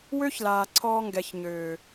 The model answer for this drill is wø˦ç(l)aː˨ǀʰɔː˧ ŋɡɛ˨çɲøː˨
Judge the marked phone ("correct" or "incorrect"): correct